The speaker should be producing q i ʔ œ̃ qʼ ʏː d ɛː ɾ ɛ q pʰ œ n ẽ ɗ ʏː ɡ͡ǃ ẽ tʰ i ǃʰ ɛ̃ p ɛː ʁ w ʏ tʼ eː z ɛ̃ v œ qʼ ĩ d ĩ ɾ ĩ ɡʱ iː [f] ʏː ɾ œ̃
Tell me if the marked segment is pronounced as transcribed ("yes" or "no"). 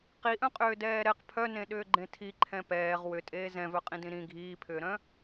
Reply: no